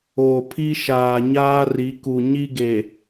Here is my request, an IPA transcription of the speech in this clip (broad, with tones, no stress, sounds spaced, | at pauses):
oː˨ pʰ i˦ ʃ aː˨ ɲ aː˦ r i˨˦ k u˨ ɲ i˦ ɡ e˨